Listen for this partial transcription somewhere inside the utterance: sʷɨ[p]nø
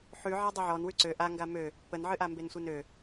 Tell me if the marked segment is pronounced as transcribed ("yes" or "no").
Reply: no